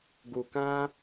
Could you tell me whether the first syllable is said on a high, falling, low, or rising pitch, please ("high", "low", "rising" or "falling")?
low